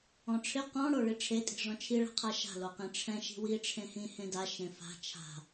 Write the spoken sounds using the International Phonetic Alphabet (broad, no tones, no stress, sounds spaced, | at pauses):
ɔ̃ ʈ͡ʂʰ ɪ q ɔ̃ ɽ o ɭ i ʈ͡ʂʰ e tʼ i̤ ʐ ɔ̃ t͡ʃʰ i ɭ a̤ qʰ a ʃ a̤ l o q ẽ ʈ͡ʂʰ ɛ̃ ʃ i̤ w i ʈ͡ʂʰ ẽ h ĩ h ẽ d a ʃ ẽ f a̤ t͡ʃʰ a̤